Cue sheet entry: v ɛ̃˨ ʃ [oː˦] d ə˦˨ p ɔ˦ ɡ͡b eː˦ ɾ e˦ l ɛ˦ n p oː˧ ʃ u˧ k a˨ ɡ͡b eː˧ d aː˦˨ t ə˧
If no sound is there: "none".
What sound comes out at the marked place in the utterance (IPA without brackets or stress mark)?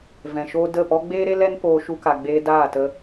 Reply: oː˦